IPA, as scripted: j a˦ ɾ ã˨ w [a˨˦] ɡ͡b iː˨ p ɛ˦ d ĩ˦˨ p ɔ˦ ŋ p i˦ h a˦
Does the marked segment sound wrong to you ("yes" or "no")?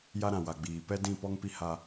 yes